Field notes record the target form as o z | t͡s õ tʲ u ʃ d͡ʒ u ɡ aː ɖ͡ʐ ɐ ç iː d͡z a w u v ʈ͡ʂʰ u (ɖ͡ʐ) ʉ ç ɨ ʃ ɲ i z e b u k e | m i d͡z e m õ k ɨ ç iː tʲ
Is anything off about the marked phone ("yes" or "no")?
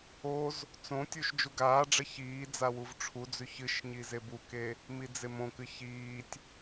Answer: yes